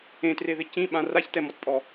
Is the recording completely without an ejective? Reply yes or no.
no